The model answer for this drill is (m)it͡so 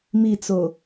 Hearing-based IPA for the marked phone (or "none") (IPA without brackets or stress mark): m